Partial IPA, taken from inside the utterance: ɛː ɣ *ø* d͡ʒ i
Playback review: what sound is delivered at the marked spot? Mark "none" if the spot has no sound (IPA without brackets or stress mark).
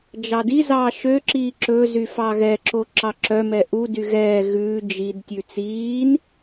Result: ʉ